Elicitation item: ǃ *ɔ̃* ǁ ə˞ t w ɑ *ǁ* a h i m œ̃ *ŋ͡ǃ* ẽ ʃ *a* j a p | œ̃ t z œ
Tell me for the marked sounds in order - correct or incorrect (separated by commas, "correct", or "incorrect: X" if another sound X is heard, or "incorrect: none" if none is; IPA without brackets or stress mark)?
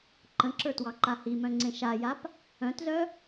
incorrect: ə̃, incorrect: ǃ, incorrect: ŋ͡ǀ, correct